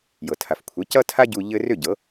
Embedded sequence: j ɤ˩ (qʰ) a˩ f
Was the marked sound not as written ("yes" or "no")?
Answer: yes